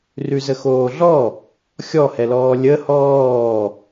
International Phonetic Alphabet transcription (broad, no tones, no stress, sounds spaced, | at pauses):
r ʉ z ə x oː ɮ ɔ | xʲ ɔ h ɛ l ɔː lʲ ə h ɔː